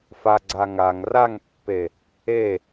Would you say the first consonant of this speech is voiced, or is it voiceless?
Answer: voiceless